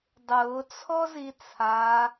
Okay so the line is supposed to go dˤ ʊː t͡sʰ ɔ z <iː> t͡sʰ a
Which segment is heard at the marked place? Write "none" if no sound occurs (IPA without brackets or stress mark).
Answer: i